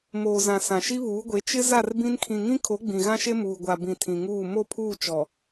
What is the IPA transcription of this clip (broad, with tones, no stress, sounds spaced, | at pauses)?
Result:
m oː˨ z ã˨ s ã˨ ʃ i˦ β uː˨˦ ɡʷ e˨˦ t͡ʃ ɪ˦ z a˦˨ r b ĩ˦ n kʰ ĩ˨ ŋ ĩ˦ kʰ o˨˦ ɡ͡b ĩ˨ ɣ ã˦ ʃ e˦ m uː˨ ɡʷ a˨ b ĩ˨ tʰ ĩ˨ ŋ uː˦˨ m o˦˨ pʰ uː˦˨ t͡ʃ ɔ˨